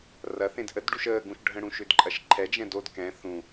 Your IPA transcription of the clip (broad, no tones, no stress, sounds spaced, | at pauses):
r ɐ θ ẽ d ʔ ə d ɖ u ʃ əː ɡ ũ ʃ ɖʱ ə̃ ɽ ũ ʃ ʏ d ǃʼ ɐ ʃ ǃʰ ɛ d͡ʒ ɛ̃ d o d k ɛ̃ θ ũ